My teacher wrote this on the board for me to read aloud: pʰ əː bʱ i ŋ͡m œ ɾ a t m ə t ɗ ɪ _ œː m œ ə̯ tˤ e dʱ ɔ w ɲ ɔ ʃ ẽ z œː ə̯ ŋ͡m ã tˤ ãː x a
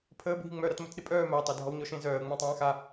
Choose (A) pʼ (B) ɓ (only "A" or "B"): A